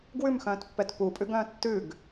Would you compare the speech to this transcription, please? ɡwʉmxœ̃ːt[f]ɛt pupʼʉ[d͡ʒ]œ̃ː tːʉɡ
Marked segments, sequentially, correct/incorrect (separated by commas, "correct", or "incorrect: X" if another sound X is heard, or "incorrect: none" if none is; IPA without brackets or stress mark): incorrect: pː, incorrect: ɡ